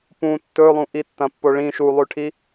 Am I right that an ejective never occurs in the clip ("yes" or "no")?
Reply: yes